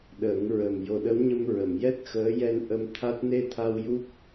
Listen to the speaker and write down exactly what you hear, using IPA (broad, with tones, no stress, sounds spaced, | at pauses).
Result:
ɗ əː˨˩˦ ŋ ɹ ə˨˩ m j o˨˩ ɗ ə˧˥ w ɲ ə˧ m ɹ ə˨˩˨ m j ɛ˦˥ t̚ x əː˧˥ j ɛ˧ n ʔ ə˧ m t̪ʰ a˦˥ t̚ n e˧ t̪ʰ a˧ w j u˦˥ k̚